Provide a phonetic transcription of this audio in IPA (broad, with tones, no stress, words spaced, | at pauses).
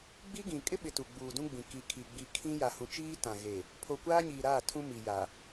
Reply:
ɡ͡bi˦ɡĩ˨ kʼɪ˦ɓɪ˨ tu˨ɡ͡buː˨dũ˦ɡ͡bĩ˨ ki˨kʰi˨ ɡ͡bi˨ kʰĩ˦ ja˨hũ˨t͡ʃiː˦ tã˨ɣe˨ | pʰo˨kʷaː˦ɲiː˨ɾaː˦˨ tʰũ˦mi˨ja˨